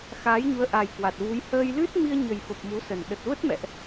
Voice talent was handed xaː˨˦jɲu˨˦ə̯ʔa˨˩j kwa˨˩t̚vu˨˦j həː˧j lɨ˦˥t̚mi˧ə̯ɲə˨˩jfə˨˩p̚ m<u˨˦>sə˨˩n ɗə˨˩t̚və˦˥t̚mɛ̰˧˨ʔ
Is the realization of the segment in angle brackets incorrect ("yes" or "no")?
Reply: no